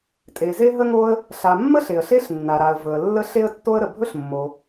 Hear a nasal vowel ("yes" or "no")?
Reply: no